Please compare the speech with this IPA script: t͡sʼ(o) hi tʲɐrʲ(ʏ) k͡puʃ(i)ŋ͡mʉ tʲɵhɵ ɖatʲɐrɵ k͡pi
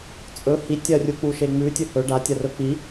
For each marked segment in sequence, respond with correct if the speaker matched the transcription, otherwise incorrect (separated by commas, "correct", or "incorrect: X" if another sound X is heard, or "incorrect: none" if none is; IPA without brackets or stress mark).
incorrect: ɵ, incorrect: u, incorrect: e